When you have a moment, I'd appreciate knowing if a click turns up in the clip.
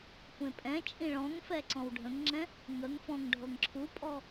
yes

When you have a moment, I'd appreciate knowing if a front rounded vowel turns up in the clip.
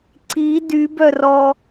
yes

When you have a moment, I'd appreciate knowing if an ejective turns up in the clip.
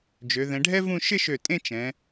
yes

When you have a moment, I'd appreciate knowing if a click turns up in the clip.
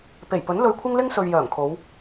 no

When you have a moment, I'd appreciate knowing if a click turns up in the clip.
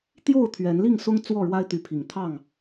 no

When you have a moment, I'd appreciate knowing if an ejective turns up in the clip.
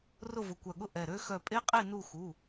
yes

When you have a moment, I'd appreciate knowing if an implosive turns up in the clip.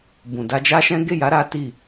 no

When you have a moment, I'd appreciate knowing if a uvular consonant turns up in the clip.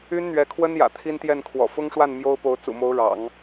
no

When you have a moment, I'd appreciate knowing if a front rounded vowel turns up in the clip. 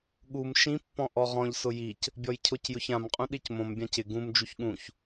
no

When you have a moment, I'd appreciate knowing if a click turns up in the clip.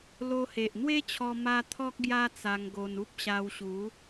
no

